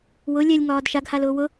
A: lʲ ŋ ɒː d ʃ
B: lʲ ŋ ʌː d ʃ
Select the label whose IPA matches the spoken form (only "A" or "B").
A